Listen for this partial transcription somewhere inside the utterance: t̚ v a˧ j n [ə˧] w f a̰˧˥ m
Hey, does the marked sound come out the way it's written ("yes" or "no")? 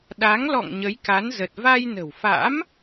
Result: no